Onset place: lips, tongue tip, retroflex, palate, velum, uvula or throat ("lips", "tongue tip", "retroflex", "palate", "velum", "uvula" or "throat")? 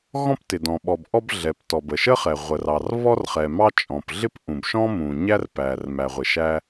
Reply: velum